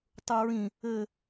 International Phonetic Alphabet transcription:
tˤuɹĩ | ɘ

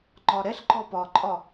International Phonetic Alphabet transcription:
ŋ͡ǃɒɾɛɬǃɔ pɒǃʼɒ

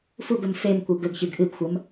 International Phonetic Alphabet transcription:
fuɡɵm femkʷe ɡɵɡçɨɡ ʔɨɡxʷɐm

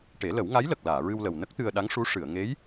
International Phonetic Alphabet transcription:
ʈe˨˩˦lə˨˩˦wŋa˧˥jlə˨˩k̚ laː˨˩˨ɹɨ˧wlə˨˩w nə˦˥k̚t̪ɨ˧ə̯ɗa˧˥ŋʂu˧˥ ʂɨ˨˩˨ə̯ŋe˧˥j

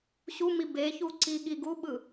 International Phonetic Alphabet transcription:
ɕumi beçu ǀiɠiɡuɓɯ

